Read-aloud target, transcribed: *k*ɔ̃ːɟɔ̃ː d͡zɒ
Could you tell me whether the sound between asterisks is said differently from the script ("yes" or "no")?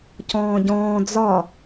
yes